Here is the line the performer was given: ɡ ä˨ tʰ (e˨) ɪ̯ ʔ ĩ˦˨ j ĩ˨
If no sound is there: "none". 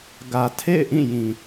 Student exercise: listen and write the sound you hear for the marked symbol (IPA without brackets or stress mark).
ḛ˦˨